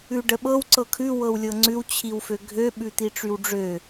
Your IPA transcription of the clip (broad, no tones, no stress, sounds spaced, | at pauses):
ʉ ɖ ə ɓ ɤ w ǀ ɤ kʰ ʉ w ɤ w lʲ ɤ ŋ͡ǀ ʉ w t͡ɕʰ i w f ø ɡʱ ø ɓ ʉ t̪ i ʈ͡ʂ y w ɖ͡ʐ ø